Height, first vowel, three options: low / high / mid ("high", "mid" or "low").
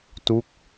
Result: high